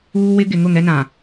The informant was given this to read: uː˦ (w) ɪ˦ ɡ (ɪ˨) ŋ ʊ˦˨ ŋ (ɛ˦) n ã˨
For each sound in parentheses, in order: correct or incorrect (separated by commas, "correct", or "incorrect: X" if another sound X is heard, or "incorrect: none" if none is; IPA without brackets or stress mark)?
correct, correct, correct